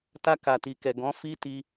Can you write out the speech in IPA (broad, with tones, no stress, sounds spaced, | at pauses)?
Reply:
t a˧ k a˨ t i˨ k ɛ˨ ɡ ɔ̃˨˦ f i˦ t i˧